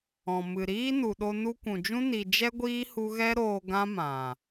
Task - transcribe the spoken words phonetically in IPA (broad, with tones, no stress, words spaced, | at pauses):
ɔ̃˨ mɨ˨ɾiː˦ nu˨ɗo˧ nu˧kʷũ˨d͡ʒũ˦ ni˧ d͡ʒɛ˦ɡʷiː˦ hu˦ ɣɛ˦ɾoː˧ ɡã˦mã˨